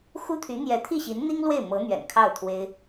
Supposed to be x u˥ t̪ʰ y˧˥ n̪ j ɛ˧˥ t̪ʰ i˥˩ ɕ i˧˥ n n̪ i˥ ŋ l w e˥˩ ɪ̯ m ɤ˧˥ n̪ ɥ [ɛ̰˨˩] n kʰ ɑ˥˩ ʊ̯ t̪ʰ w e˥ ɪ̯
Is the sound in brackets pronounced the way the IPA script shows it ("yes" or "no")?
yes